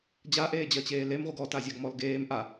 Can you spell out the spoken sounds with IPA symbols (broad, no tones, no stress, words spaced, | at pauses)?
d͡ʑaʔeːd͡ʑɜt͡ɕeː lemʁʷɨɡ ɔtazʲaɡ mɔlɡeːm ʔa